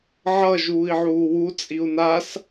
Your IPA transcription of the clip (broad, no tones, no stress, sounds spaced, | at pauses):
ʕ ʌ ʒ uː i̯ ʕ uː w u t͡sʼ i u̯ n a s